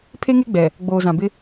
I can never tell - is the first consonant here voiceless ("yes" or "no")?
yes